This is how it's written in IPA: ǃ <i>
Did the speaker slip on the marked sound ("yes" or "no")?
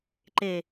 yes